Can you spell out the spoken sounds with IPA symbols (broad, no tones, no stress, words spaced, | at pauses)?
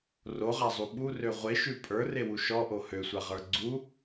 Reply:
roʁazˤu ɓurø ʁʷeʃʉ pʼə˞rewu ʃɔʔo høsʷaʁə˞ ɡ͡ǀu